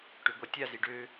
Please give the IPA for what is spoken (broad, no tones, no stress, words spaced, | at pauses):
ʈøɡʷatʲazi ɖø